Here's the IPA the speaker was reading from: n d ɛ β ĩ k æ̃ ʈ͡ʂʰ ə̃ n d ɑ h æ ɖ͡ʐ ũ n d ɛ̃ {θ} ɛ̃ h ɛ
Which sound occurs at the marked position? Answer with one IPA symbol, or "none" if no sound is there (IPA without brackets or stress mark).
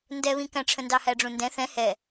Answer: θ